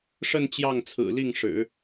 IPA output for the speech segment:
ʂ ə˥˧ n t͡ɕ j ɑ˥˩ ŋ t͡sʰ ɹ̩˨˩ l i˥˩ ŋ ʂ ɻ̩˨˩˦

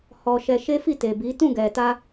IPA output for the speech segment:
h ɔ˧ ʃ ɛ˧ ʃ e˦ f i˦˨ t e˨ b i˨˦ t ũ˦˨ ɡ ɛ˨ t a˧

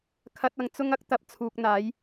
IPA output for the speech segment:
kʰ ɐ˧ t̚ ɐ˨ ŋ t͡s ʊ˥ ŋ ɐ˥ k̚ t̪ ɐ˧ p̚ t͡sʰ uː˨ k̚ n̪ aː˨˥ j

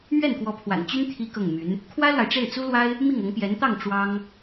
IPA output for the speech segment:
m ɥ ɛ˥˩ n k w ɔ˧˥ pʰ w a̰˨˩ n t͡ɕ y˥ n t̪ʰ i˥ k ɤ˥˩ ŋ m y˧˥ n | kʰ w ä˥ l w a˨ ɪ̯ ʈ͡ʂ e˥˩ ɪ̯ t͡s u˥ l w a˥ ɪ̯ | m i˥˩ ŋ ɤ˧˥ ŋ p j ɛ˧˥ n t̪ ɑ˥˩ ŋ ʈ͡ʂ w ɑ˥ ŋ

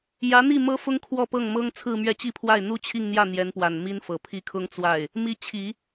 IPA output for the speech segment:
j ä˧˥ n̪ i˥˩ m ɤ˥ f ʊ˥ ŋ kʰ w ɔ˥˧ p ɤ˥˩ ŋ m ɤ˥ ŋ t͡sʰ ɹ̩˥˧ m ɥ ɛ˥˧ t͡ɕ i˥˧ pʰ w a˥˩ ɪ̯ n̪ u˥ t͡ɕʰ i˥˧ ŋ n̪ j ä˥˩ n̪ j ɛ˧˥ n p w a˨˩ n m i˥ n f ɤ˨˩ pʰ i˥˩ kʰ ʊ˥ ŋ t͡s w a˥˩ ɪ̯ | m i˧˥ t͡ɕʰ i˨˩˦

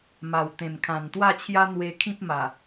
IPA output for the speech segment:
m a˨˩ w t̪ ẽ˨˩ m kʰ ã˨˩ n t̪ w a˥˧ t͡ɕʰ j a˦ n̪ w e˧ kʰ ĩ˦ p̚ m a˨˩

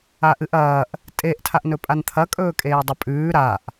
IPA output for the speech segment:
a ʔ ɨ ʔ ɐː ʔ | tʼ e ʔ tʰ a ʔ n ɵ pʼ a n t̪ʰ ɐ kʼ ɵː kʼ eː dˤ ɐ pʼ ʉː ɾ a ʔ

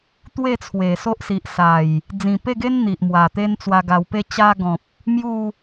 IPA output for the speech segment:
t̪ w e˥˧ t͡sʰ w e˨˩ s o˦ ʔ s i˨ ʔ s a˨˩ j | d͡z ĩ˨˩ p e˥˧ ɡ e˦ n n̪ i˨ ʔ m w a˨˩ t̪ e˦ n t͡s w a˧ ɡ a˧ w p e˥˧ t͡ɕ a˧ ɡ ɔ̃˨ p̚ | m j u˥˧

